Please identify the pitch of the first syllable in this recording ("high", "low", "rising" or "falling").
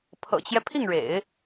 low